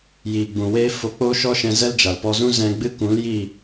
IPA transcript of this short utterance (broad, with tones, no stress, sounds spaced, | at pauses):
j iː˨ ɡ͡b ũ˨ w eː˧ f o˧ k͡p oː˦ ʃ ɔ˦ ʃ ɛ̃˧ z ɛ˦ l d͡ʒ a˨ l p ɔ˧ z ũ˦ z ɛ̃˧ ɡ͡b ɨ˦ k ũ˨˦ l j iː˦˨